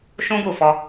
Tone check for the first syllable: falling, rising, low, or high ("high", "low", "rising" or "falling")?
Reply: high